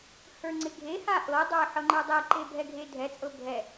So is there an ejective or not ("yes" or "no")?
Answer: yes